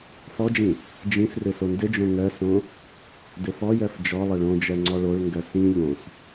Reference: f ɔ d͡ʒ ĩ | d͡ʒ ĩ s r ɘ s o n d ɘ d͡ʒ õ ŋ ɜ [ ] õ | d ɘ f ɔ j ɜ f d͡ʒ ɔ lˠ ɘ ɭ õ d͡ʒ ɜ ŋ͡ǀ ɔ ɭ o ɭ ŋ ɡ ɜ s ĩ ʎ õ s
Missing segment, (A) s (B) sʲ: A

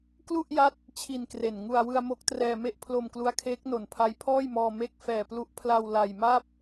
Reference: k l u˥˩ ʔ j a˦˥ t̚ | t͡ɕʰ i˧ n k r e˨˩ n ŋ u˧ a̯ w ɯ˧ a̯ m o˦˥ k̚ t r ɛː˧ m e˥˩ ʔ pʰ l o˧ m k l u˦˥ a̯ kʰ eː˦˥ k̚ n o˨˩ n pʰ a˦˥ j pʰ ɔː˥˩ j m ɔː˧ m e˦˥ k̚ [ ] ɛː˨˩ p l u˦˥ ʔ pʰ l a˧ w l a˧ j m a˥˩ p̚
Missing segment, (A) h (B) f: B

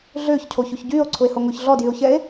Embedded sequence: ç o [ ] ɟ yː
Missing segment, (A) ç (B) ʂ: A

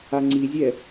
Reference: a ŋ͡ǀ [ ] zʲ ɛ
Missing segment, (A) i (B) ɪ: A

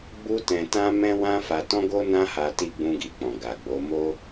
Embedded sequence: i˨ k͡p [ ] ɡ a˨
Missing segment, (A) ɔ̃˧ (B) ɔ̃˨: B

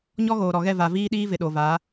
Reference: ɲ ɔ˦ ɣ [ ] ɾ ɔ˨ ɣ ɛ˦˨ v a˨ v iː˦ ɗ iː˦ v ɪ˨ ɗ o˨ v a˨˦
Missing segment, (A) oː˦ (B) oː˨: B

